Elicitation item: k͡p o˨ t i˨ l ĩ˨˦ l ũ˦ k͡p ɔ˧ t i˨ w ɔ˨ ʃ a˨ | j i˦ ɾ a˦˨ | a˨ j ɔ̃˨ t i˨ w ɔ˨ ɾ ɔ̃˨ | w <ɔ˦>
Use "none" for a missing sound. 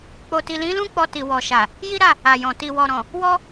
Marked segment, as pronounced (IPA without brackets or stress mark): ɔ˦